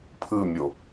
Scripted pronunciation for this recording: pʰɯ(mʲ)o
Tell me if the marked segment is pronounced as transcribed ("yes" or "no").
yes